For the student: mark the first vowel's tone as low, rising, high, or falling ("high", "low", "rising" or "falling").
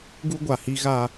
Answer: high